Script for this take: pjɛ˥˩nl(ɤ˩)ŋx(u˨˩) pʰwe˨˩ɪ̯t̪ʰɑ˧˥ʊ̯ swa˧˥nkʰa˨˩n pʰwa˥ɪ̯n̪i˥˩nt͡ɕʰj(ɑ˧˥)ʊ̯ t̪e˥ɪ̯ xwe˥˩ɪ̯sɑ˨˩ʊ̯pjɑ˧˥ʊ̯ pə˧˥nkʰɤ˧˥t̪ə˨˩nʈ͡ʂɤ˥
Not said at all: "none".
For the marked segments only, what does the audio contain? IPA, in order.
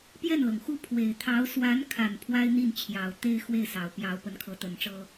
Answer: ɤ˩, u˥˩, ɑ˨˩

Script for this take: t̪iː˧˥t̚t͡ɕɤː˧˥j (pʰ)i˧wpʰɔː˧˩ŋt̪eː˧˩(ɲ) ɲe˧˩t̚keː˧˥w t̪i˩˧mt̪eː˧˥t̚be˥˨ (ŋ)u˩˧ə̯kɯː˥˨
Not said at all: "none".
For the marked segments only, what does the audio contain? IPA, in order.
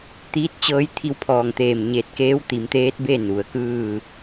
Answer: t̪ʰ, m, n

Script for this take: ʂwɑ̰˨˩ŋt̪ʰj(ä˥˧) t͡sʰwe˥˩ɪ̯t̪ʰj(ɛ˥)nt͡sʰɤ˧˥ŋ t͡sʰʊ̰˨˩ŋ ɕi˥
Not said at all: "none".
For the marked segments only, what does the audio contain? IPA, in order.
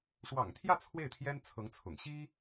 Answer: ä˥˧, ɛ˥

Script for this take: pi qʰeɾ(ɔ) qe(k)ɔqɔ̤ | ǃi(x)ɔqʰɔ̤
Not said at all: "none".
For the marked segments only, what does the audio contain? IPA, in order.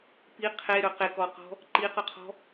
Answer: ɵ, k, q

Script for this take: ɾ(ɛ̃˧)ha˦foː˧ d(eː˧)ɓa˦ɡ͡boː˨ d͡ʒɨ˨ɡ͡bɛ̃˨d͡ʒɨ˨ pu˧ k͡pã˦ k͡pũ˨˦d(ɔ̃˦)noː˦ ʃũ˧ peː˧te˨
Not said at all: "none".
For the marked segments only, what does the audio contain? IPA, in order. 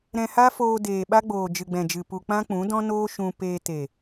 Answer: ɛ̃˧, eː˨, ɔ̃˦

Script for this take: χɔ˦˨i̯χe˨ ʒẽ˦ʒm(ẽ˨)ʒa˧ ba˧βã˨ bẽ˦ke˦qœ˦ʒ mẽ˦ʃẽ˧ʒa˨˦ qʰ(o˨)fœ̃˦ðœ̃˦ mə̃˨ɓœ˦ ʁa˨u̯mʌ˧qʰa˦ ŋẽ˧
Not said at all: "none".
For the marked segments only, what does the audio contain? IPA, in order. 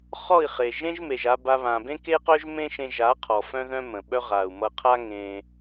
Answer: e˨, ɔ˨

